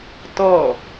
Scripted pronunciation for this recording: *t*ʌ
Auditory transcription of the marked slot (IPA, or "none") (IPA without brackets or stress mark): t